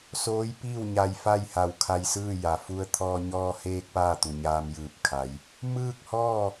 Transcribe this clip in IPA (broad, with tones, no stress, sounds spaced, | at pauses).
s oː˧˥ j p iː˥˨ w ɲ a˧ j f a˥˨ j h a˧˩ w kʰ a˧ j s ɯː˥˨ j a˩ f u˧ ə̯ t̪ʰ ɔː˧ ɲ ɔː˧ h eː˧ k̚ p aː˥˨ t̪ u˩ ɲ aː˧ m j ɯː˧˩ p̚ kʰ a˩˧ j | m ɯː˥˨ k̚ h ɔː˥˨